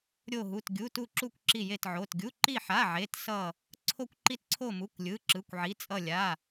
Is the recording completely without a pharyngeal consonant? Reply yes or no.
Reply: no